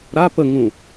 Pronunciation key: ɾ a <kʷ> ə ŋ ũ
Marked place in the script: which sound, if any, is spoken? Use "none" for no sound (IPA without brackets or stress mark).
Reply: p